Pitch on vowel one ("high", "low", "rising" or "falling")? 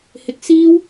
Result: high